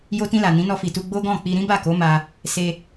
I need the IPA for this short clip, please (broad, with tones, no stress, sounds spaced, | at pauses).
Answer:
j o˧ t ĩ˧ l a˨ n ĩ˨˦ n ɔ˧ f i˨ t u˧ ɡ͡b o˦ ɡ ɔ̃˦˨ k͡p i˧ ɾ ĩ˦ b a˦˨ k o˨˦ m a˧ | s e˧